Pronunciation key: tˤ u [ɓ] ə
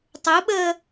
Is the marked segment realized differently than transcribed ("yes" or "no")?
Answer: no